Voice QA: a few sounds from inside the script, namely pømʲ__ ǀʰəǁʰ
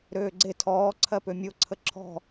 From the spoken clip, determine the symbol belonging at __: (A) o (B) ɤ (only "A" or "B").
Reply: A